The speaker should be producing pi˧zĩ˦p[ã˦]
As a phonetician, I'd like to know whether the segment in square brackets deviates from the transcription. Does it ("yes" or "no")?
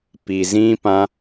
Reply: no